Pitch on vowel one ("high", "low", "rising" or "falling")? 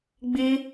high